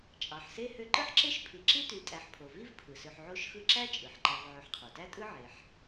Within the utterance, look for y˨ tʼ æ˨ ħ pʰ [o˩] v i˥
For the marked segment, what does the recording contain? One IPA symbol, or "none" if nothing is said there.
o˩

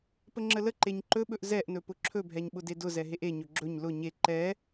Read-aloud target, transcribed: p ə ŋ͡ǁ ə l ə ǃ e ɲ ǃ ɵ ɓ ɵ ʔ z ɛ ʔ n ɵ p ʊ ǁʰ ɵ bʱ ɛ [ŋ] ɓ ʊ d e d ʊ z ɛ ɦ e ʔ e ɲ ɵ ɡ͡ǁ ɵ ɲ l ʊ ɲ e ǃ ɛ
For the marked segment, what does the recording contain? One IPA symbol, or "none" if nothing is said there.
ɲ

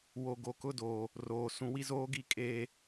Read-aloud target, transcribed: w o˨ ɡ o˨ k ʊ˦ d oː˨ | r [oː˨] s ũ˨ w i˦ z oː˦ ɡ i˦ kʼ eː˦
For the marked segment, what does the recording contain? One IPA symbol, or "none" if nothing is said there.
oː˨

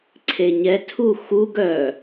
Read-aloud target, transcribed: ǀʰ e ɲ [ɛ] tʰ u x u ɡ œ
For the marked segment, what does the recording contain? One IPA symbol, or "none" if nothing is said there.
ɛ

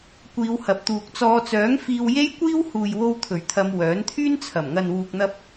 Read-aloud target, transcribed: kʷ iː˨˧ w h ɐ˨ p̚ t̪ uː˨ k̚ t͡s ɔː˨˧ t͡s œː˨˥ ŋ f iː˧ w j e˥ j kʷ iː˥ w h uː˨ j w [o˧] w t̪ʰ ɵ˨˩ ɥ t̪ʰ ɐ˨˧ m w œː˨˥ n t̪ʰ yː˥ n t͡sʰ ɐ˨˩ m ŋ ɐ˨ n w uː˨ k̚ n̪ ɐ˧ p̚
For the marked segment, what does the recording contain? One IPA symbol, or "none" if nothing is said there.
o˧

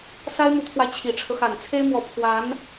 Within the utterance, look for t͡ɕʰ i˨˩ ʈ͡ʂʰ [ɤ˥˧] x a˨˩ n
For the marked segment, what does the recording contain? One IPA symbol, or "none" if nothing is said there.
ɤ˦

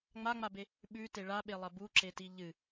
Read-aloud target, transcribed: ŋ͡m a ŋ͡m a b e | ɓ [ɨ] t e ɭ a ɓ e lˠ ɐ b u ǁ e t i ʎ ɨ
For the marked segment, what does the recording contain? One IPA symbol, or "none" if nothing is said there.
ʉ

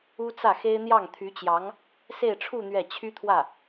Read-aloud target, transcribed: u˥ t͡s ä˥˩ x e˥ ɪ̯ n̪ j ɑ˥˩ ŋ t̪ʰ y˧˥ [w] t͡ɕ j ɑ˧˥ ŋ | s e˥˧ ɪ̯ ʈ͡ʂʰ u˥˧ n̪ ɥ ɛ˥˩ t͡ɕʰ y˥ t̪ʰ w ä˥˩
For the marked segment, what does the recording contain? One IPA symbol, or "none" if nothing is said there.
none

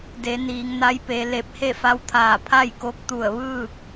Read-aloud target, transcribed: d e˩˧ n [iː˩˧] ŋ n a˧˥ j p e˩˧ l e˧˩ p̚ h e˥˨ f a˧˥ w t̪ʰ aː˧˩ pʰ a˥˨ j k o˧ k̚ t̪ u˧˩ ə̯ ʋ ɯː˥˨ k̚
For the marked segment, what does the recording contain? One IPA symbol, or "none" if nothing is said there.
iː˩˧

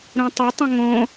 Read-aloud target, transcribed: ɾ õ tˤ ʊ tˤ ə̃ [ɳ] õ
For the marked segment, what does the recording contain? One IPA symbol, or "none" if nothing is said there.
ŋ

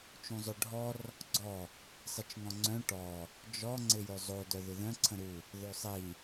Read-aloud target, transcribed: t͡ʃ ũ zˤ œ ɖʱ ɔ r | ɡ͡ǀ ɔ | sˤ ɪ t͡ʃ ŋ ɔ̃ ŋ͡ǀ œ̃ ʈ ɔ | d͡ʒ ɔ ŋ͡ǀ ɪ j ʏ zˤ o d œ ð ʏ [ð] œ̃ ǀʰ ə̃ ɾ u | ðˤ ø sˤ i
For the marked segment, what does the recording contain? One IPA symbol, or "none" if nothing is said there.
ð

